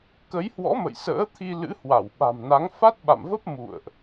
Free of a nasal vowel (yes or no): yes